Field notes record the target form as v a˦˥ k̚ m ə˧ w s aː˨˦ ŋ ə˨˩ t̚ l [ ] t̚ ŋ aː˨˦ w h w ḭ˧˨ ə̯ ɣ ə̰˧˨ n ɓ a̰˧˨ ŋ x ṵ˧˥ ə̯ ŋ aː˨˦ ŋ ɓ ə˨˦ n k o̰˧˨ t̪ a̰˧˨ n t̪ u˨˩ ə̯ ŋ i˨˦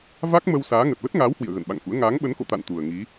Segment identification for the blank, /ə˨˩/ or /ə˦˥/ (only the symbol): ə˦˥